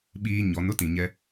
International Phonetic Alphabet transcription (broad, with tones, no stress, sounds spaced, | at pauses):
ɓ iː˦ ɲ ɔ˨˦ n ʊ˦ t ĩ˨ ɲ ɛ˦